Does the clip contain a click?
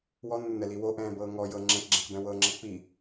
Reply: yes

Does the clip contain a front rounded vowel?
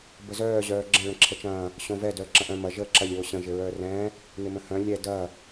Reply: yes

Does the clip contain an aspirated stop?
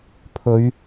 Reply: yes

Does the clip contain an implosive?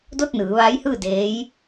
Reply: no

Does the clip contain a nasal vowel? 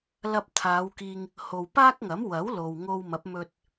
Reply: no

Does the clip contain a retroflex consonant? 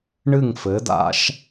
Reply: yes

